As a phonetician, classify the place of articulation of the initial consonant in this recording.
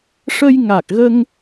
retroflex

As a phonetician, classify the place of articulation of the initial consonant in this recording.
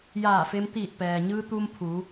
palatal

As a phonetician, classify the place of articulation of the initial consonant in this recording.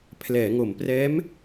labial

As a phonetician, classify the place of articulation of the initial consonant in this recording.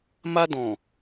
labial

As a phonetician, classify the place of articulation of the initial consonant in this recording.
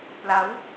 labial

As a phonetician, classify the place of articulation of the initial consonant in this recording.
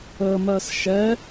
labial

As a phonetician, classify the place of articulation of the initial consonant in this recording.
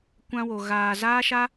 velar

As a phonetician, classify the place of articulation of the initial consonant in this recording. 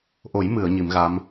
glottal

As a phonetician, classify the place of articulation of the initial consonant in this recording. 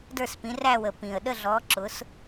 alveolar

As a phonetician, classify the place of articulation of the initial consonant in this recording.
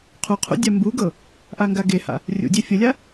uvular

